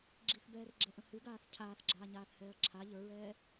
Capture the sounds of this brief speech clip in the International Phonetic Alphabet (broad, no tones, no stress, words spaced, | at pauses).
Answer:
ɡ͡ǁiθbɛːrɡ͡ǁɛʔə̃ hɨɡaːθ cʰaːθɡ͡ǁaːɲaːθhɛːɐ̯ ǁʰa ʎə˞ɹɛː